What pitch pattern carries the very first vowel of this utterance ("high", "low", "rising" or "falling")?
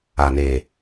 low